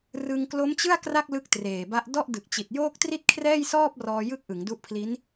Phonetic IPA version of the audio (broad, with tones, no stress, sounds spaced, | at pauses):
r ɯ˧ ŋ k l o˦˥ m t͡ɕ ɯ˥˩ a̯ k r a˥˩ k̚ l ɯ˥˩ k̚ t r eː˨˩ b a˦˥ ʔ d ɔ˥˩ ʔ d ɯ˨˩ k̚ t͡ɕ i˨˩ t̚ j oː˥˩ k̚ t r i˥˩ t̚ kʰ r ɛː˥˩ j s ɔː˥˩ p̚ r ɔː˧ j ɯ˦˥ k̚ ʔ ɯ˩˦ ŋ d u˦˥ ʔ pʰ l i˦˥ n